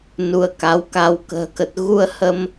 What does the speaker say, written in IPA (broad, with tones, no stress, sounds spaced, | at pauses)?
n u˧ ə̯ k a˨˦ w k a˧ w k ə̤ː˨˩ k ə˨˩ t̚ ɣ u˧ ə̯ h ə˧ m